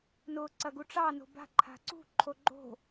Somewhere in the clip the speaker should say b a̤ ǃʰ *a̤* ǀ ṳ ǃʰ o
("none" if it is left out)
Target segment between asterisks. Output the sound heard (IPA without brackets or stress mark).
a̤